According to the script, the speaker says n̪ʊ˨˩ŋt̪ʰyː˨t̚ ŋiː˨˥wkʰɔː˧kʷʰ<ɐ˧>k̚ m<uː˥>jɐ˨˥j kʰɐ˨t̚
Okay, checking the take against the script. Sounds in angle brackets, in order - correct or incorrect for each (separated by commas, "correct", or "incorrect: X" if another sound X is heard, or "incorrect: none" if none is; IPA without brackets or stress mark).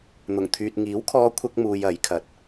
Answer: correct, incorrect: uː˧